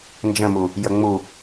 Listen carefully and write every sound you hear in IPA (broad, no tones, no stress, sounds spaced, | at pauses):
n d͡ʒ ə̃ m u | j ə ŋ͡m u